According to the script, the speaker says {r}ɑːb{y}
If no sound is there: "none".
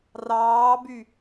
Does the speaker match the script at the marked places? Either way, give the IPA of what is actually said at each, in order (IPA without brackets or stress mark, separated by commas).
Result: r, y